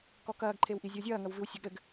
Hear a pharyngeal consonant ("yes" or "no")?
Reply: no